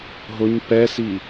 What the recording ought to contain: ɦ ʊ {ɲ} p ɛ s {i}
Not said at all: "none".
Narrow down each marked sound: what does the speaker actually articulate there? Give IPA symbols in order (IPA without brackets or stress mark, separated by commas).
ɲ, i